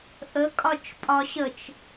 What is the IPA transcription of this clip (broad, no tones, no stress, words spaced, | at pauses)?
ʔəkʼɒt͡ʃ pʼɒɕət͡ʃ